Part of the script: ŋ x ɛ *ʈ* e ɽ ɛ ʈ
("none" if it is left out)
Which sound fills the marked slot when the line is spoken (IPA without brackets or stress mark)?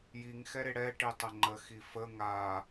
ɾ